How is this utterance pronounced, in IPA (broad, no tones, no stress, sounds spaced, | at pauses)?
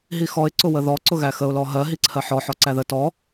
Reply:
ɦ i x ɔ ɪ̯ ǀ ʊ w ə ð ɔ ǀ ʊ ɣ æ x ə ʊ̯ l ɔ ɦ ɜ ɦ i ǀʰ ɜ ħ ɔ ħ ɔ ǀ æ ð ə t ɔ